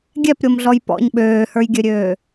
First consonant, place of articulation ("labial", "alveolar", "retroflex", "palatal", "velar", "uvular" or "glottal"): velar